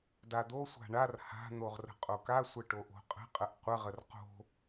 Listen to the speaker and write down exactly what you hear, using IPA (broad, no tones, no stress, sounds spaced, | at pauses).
d a d̪ o sʷ a̤ ɳ a r h a̤ n̪ o ʁ r ə̤ qʼ o k a sʷ ə ʈ o ʔ o̤ qʼ ə̤ qʼ ə ʔ qʷ ə ʁ ə r q o̤